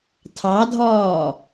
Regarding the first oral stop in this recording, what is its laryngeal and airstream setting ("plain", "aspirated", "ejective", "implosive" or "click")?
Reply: aspirated